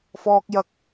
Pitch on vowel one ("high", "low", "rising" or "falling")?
high